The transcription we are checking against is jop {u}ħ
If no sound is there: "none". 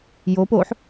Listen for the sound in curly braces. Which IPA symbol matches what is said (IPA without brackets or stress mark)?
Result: o